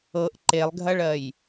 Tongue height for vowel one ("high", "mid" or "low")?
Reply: mid